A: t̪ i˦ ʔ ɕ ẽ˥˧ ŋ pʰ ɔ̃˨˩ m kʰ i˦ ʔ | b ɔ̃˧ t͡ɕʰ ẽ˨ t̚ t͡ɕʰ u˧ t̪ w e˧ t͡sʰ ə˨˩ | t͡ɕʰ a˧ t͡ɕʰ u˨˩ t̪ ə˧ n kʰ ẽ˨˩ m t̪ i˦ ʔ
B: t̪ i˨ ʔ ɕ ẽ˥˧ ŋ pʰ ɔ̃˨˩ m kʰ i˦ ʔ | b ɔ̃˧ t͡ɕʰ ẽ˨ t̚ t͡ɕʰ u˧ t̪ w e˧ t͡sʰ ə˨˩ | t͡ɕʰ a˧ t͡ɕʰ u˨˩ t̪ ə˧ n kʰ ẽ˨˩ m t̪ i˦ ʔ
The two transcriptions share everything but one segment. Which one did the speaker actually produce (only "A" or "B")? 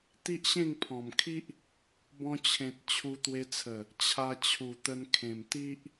A